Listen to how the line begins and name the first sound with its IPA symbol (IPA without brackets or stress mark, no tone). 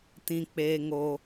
t